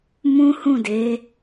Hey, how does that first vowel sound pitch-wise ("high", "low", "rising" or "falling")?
high